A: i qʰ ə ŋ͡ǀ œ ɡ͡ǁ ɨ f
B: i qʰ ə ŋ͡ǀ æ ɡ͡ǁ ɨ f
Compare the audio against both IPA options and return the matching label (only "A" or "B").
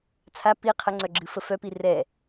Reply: A